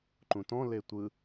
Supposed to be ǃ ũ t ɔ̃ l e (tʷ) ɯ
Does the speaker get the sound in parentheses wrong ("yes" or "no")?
no